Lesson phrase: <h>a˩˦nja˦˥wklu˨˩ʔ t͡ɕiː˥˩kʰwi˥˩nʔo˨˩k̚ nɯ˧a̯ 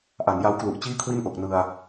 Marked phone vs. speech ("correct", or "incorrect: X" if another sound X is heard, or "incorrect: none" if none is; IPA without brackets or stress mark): incorrect: ʔ